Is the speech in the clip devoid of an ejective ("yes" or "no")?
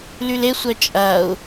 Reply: no